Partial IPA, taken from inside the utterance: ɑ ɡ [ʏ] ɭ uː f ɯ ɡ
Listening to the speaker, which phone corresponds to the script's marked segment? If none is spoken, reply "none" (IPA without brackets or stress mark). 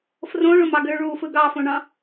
ʏ